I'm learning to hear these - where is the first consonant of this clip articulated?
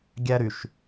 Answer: velum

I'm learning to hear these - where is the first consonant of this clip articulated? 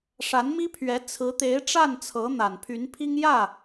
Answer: retroflex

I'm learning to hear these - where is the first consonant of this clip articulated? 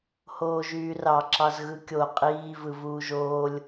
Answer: throat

